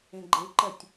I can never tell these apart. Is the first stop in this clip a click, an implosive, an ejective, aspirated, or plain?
click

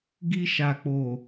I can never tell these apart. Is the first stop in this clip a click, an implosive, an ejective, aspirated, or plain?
plain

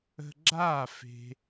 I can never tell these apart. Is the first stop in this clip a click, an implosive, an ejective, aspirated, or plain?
click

